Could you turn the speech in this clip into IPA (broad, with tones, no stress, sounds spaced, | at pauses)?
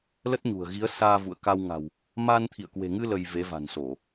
l ə˦˥ t̚ ɲ ṳ˨˩ ə̯ ɣ i˨˦ ə̯ s aː˧ v ṵ˧˨ ə̯ k a˧ w ŋ a̤˨˩ w | m a˧ n t̪ʰ ḭ˧˨ ə̯ k w e̤˨˩ ŋ ɨ˧ l ə˧ j v e˨˦ v a̤˨˩ n s o˧˩˨